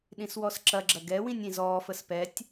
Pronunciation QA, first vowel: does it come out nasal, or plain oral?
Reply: nasal